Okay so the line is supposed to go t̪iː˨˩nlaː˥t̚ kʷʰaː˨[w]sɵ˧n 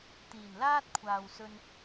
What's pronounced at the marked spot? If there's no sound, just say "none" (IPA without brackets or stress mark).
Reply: w